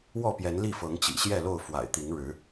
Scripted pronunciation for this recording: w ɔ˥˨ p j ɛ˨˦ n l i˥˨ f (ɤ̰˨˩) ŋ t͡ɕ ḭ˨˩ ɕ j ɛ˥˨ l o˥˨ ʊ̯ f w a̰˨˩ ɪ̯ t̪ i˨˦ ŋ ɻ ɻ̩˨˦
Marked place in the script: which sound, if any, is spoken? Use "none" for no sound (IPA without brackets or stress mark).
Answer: ɤ˨˦